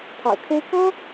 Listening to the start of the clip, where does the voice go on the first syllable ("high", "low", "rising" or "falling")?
low